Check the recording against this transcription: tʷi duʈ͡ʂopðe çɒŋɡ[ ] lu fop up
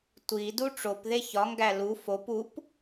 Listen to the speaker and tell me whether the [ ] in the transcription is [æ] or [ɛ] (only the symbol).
æ